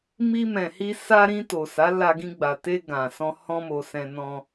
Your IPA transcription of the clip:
m i˧ m ɛ̃˨ h i˧ s a˧ ɾ ĩ˧ t o˨ s a˨˦ l a˧ ɡ ĩ˧ ɡ͡b a˨ t e˧ ɡ ã˨ s ɔ̃˧ h ɔ̃˧ m o˨ s ɛ̃˧ n ɔ̃˧

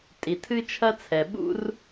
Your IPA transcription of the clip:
tʼ i˨ tʰ ɨ˦ t͡ʃʰ ɐ˦ t͡sʰ ɛ˨ ɓ ṵ˦ r

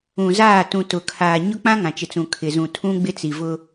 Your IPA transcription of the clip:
ũ˨ z aː˦˨ t ũ˨ t ʊ˨ kʰ aː˨ ɲ ʊ˦ k͡p ã˦ ŋ ã˨ t͡ʃ ɪ˨ t͡s ũ˨ kʰ ɪ˨ z ũ˨ tʰ ũ˦ ɡ͡b ɪ˦ t͡s i˨ v ʊ˦

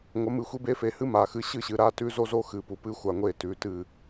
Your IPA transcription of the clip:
ŋʷ ɐ˨˦ m ɨ˨ xʷ i˦ b e˦ f e˨ h ɨ˦ m a˨ x ɨ˦ ɕ ɨ˦˨ ɕ ɨ˨ ɾ a˦ t ʉ˦ z o˦ z o˦ x ɨ˨ p u˨ p ɨ˦ xʷ a˨ ŋʷ e˦˨ t ʉ˨ t ɨ˦˨

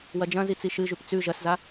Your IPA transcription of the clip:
w ɐ d͡ʒ ɐ̃ z i t͡s i ʃ ɨ ʒ ʉ p t͡s ʉ ʒ ɐ s z a

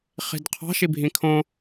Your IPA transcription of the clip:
χ i̤ d qʰ ɑ̤ ʃ i bʱ ĩ kʰ õ

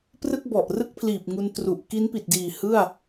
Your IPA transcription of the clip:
p r ɯ˥˩ k̚ b ɔ˨˩ ʔ r ɯ˥˩ k̚ pʰ l iː˨˩ p̚ ŋ u˧ n t r u˨˩ ʔ k i˦˥ n p i˨˩ t̚ d iː˨˩ h ɯ˥˩ a̯

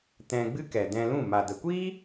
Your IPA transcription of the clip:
t ɛ̃˧ ɡ͡b ɨ˦ k ɛ˨ d ɛ̃˧ l ũ˦˨ m a˨ d ə˨ kʷ iː˦

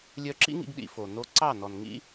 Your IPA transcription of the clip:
lʲ œ˧ ǁ ḭ˦ ŋ ḭ˧ ɡ ɗ ḭ˧ f o˨ n o˧ ǀ ɑ˦˨ n ɔ˨ n ŋ ḭ˦

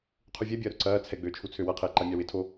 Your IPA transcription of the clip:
qʰ u vʲ ɛ bʲ ɐː ɾ ʊ ǀ ɐː t͡sʰ ɛ ɡ͡b øː t͡ʃʰ u t͡sʰ ø w ɐ qʰ ɪː ǃ a mʲ a w ɪ tʰ o

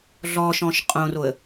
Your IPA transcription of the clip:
ɮ ɔ ʃ ɔ̃ ʃ qʼ õ r o ə̯

